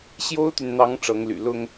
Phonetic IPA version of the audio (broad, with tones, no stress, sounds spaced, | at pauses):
ɕ j o˥ ʊ̯ t̪ y˨ n n̪ ɑ˧˥ ŋ ʈ͡ʂ ɤ˧˥ ŋ l y̰˨˩ l ʊ˥ ŋ